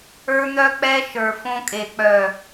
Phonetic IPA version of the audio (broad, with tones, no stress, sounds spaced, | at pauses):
ə˞˦ n̪ œ˦ k͡p ɛ˦ ʃ ə˞˨ f õ˦ kʼ e˨ k͡p œ˨